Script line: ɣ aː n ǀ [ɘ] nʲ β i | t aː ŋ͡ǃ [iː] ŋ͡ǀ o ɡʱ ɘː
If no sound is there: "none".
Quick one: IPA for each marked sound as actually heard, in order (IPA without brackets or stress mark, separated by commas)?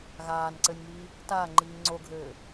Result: ɘ, iː